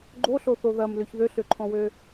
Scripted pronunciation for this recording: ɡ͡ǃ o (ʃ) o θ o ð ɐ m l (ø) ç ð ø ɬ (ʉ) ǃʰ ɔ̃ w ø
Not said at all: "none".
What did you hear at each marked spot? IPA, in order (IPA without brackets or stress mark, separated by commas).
ɬ, ø, ø